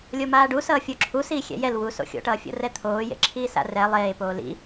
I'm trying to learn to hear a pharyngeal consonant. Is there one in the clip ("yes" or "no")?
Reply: no